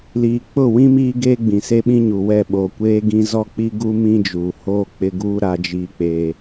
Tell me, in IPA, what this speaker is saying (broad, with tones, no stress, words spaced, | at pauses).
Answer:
liː˨k͡pʊ˦˨wĩ˦ miː˦ɡeː˦ɡ͡bĩ˨ se˦ɓĩ˦ɲu˨ wɛ˦˨ ɓo˨kʷeː˦ɡĩ˦ zɔ˦k͡pi˦ɡu˦ mĩ˦d͡ʒuː˨ hoː˦k͡pɪ˦ɡuː˦ ɾa˦d͡ʒiː˦k͡peː˦